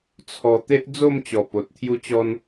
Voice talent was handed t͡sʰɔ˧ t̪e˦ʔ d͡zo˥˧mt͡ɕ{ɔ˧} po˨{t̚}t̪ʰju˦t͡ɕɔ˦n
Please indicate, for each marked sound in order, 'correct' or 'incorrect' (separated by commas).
incorrect, correct